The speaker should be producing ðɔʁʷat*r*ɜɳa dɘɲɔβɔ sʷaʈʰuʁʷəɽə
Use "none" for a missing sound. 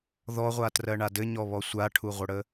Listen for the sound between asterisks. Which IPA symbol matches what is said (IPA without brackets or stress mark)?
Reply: r